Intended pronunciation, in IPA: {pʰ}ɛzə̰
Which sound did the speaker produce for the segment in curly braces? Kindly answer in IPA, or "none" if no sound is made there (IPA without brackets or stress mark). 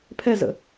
pʰ